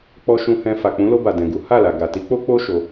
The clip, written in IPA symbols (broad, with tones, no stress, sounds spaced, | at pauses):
k͡p ɔ˧ ʃ ũ˧ h ɛ̃˧ f a˨ k͡p ũ˨˦ l o˧ b a˨ d ɛ̃˨ ɡ u˨˦ h a˦˨ l a˨ ɡ a˨ t i˨˦ k͡p o˦ k͡p o˦ ʃ o˧